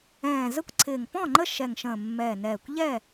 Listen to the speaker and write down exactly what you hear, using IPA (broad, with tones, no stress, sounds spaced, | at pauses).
ɛ̃ː˨˩ z ə˥˨ kʷ ǀʰ ɪː˨˩ ŋ p ɔ̃˥˨ ŋ͡ǃ ə˥˨ ʃ ɛ˨˩ ŋ ʃ ə̃ː˨˩ mː ɛː˨˩ n ɛː˨˩ kʷ ʎ ɛ˥˨